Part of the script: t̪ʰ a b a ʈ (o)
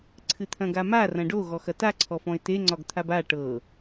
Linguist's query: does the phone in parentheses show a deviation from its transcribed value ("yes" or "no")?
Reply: yes